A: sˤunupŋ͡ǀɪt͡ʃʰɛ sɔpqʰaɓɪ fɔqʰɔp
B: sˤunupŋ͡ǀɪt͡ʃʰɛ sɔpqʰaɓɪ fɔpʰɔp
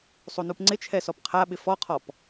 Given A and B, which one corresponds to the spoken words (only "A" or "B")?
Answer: A